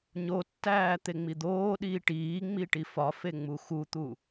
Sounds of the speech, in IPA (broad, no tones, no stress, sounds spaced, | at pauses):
ɲ o tː æː t̪ e ŋ͡m i d̪ oː ɗ iː ʈ iː ŋ͡m i ʈ i f ɒ f e ŋ͡m u x u t̪ u